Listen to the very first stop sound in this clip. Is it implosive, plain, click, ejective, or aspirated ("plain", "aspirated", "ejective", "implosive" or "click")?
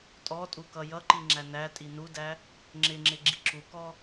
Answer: ejective